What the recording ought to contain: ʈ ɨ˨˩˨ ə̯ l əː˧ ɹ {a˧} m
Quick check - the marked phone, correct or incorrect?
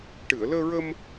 incorrect: ə˧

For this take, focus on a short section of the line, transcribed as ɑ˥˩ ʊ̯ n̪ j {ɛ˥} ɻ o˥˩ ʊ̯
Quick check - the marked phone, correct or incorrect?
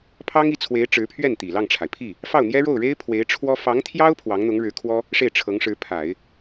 correct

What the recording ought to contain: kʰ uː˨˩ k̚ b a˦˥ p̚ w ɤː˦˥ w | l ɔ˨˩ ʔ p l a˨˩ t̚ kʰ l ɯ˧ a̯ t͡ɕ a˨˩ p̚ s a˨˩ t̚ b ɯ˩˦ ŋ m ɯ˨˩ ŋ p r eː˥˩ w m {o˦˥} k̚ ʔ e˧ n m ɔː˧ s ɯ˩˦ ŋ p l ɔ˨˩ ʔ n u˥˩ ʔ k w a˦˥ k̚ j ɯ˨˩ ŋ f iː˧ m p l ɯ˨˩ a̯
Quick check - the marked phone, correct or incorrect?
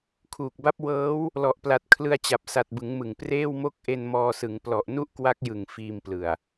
incorrect: o˥˩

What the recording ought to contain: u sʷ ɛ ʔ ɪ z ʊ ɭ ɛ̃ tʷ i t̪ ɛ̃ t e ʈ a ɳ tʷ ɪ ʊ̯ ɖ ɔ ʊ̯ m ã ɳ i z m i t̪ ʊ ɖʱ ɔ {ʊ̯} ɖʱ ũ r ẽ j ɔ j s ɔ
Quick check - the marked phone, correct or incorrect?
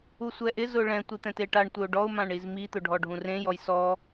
incorrect: none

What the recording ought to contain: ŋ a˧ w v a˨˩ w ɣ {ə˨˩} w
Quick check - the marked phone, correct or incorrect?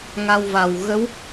incorrect: ə˧˥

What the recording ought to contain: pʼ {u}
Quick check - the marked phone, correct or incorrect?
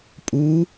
correct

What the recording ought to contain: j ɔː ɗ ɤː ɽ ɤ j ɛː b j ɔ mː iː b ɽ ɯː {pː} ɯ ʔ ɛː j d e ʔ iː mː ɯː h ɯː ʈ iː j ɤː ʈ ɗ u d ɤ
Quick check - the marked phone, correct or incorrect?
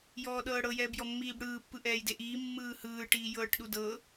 correct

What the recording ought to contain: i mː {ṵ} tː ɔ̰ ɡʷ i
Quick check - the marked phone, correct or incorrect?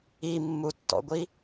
incorrect: u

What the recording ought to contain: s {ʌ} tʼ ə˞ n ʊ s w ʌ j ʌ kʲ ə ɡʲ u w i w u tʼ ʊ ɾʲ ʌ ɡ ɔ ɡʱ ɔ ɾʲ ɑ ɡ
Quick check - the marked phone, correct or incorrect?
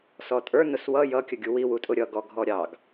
incorrect: ɔ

